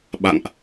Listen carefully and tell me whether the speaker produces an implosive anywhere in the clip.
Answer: yes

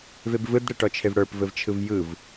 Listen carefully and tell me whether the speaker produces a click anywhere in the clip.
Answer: no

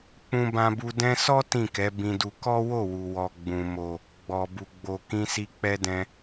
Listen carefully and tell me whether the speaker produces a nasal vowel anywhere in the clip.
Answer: yes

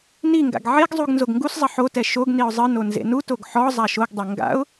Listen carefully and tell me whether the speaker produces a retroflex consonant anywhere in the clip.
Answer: no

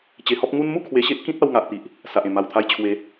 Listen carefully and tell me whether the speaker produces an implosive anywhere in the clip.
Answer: no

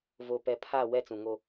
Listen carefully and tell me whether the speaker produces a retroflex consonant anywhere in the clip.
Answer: no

